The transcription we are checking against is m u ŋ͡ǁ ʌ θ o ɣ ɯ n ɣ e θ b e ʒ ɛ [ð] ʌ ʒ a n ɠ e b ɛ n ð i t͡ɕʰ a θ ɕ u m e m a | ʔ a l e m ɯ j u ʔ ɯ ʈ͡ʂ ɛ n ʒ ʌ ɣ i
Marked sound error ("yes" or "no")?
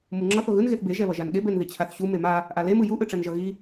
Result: yes